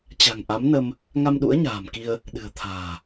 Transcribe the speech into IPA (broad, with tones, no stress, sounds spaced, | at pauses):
t͡ɕ a̤˨˩ ŋ ʔ a˨˦ m n ə˧ m | ŋ a˧ m ɗ ṵ˧˥ ə̯ ɲ a̤ː˨˩ m k i˧ ə̯ | ɗ ɨ̤˨˩ ə̯ t̪ʰ a̤ː˨˩